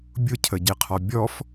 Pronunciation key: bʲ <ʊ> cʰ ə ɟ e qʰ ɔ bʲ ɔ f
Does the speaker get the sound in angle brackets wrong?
no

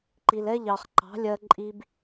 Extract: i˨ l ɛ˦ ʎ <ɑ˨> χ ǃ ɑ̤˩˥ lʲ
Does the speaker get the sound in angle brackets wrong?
no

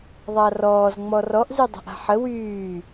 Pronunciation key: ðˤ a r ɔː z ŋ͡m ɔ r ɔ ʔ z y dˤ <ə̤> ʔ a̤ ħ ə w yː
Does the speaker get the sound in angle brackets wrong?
no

